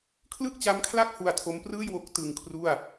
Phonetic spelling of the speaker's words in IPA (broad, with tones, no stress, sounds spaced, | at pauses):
kʰ l ɯ˥˩ k̚ t͡ɕ a˦˥ m kʰ l a˥˩ k̚ h u˧ a̯ tʰ o˦˥ m p r ɯː˥˩ j w o˦˥ k̚ t ɯ˧ ŋ kʰ r u˥˩ a̯